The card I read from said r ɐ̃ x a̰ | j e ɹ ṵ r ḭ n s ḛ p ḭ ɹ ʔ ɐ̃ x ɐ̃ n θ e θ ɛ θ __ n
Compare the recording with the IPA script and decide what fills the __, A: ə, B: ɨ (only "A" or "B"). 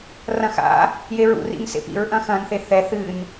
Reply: B